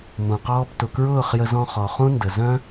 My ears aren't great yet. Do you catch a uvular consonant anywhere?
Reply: yes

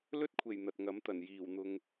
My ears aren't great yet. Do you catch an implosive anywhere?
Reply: no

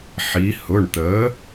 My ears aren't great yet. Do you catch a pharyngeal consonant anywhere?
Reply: yes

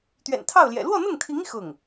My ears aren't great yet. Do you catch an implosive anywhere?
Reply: no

